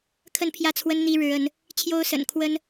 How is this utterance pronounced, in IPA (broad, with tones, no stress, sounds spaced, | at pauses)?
kʰ ə˥˧ n pʰ j ä˥˩ t͡sʰ w ə˥ n n̪ i˥ ɻ ɻ̩˧˥ ə˧˥ n | t͡ɕʰ j o˥ ʊ̯ s ə̰˨˩ n kʰ w ə˥ n